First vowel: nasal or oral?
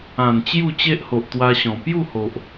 nasal